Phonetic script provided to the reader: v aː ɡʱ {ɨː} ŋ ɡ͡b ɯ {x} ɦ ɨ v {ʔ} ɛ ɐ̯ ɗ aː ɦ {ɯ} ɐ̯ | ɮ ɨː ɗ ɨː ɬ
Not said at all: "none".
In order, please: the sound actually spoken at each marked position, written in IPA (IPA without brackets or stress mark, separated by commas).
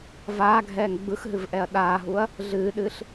ɛː, x, ʔ, u